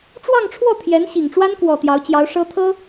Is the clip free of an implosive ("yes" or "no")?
yes